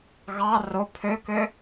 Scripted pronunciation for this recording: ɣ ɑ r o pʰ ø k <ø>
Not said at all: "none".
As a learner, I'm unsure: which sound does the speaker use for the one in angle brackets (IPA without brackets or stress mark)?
ø